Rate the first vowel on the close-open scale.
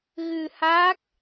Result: close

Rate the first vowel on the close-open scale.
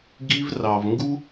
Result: close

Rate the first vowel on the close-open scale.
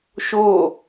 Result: mid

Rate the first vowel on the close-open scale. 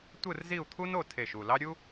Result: close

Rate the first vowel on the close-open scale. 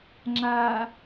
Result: open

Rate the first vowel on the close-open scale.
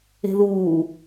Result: mid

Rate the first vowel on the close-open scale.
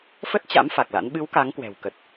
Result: mid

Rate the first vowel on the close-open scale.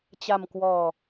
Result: open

